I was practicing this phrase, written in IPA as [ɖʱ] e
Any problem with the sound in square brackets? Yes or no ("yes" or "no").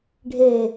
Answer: no